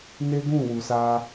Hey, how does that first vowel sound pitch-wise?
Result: high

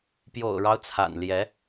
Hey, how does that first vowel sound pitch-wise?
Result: low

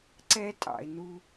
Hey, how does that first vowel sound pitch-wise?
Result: high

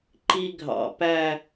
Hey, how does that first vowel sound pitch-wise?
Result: high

